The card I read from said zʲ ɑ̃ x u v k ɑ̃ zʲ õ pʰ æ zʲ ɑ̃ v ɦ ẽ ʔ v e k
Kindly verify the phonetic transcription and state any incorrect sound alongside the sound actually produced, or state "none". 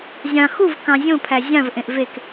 ɦ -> ʔ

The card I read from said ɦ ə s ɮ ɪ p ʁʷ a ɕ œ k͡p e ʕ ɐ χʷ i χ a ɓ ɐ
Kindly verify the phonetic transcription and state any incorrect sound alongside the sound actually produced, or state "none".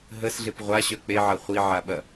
χ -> ʕ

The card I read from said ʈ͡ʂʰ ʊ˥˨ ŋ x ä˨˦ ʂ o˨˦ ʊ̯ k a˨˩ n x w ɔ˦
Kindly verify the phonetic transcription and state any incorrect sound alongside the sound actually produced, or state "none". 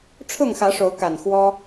none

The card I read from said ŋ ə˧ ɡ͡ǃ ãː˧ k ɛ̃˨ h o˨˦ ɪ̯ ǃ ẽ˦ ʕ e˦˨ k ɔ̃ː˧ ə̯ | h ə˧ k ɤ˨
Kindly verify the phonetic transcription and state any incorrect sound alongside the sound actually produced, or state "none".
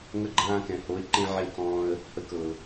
none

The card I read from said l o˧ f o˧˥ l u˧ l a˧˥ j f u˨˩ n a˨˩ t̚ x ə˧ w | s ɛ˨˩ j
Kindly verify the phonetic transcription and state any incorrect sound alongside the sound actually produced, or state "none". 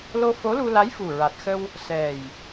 n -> ɹ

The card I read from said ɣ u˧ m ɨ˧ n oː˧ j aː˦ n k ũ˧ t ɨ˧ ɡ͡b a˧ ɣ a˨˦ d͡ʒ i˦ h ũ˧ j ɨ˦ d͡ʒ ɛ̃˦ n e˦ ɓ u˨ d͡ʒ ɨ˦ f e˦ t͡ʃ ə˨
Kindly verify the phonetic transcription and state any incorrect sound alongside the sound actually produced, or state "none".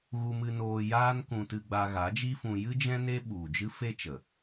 h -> f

